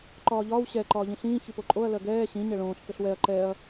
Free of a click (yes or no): no